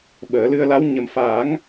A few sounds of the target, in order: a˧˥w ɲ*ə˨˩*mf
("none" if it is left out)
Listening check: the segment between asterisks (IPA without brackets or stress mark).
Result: ə˨˩